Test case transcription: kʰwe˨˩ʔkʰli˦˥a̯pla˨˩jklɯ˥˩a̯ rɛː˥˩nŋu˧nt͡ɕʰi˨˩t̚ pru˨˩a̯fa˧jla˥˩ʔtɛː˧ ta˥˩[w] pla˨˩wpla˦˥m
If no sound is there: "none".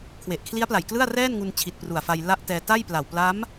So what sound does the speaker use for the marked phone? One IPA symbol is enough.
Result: j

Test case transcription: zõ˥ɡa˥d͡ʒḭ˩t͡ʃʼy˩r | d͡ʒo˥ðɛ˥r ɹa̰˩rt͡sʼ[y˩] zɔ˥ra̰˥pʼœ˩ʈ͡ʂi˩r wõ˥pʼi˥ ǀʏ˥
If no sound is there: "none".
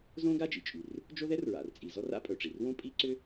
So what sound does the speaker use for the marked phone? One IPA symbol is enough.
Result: i˩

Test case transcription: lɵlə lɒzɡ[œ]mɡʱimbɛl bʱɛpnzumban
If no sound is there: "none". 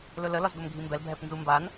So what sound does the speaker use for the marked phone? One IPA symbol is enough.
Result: ɵ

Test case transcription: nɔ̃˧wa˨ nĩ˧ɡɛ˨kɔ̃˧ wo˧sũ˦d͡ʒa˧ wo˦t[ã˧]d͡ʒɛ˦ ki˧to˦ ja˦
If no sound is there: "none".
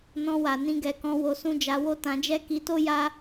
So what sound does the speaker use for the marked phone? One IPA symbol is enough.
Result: ã˧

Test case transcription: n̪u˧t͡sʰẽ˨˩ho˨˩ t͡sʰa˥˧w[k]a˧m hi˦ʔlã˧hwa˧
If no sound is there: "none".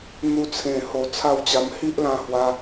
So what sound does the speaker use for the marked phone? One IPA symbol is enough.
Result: t͡ɕ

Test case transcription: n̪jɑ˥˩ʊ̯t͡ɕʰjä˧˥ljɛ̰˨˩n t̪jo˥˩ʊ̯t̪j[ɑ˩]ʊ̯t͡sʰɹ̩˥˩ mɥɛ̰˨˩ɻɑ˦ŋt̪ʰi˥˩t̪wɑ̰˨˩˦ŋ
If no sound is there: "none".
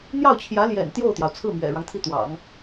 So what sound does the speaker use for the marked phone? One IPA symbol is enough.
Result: ɑ˩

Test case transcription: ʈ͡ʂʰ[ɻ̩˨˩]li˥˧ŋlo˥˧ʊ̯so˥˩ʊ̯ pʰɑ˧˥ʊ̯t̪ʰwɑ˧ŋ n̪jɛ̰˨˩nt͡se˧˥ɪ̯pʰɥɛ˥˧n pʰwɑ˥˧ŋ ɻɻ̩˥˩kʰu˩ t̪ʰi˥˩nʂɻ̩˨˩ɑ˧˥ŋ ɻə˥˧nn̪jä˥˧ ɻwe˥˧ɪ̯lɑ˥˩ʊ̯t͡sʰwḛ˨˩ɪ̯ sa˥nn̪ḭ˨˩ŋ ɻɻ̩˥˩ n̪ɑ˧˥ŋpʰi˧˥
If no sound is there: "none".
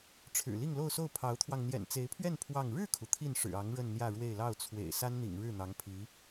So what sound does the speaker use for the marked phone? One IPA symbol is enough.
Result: ɻ̩˨˩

